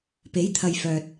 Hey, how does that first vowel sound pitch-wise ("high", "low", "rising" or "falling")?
rising